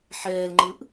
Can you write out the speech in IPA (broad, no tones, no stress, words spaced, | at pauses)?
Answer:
ħɛːlŋ͡ǃɯʔ